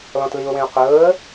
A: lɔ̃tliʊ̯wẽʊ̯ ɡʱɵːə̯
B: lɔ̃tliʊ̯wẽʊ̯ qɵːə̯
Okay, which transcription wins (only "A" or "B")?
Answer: B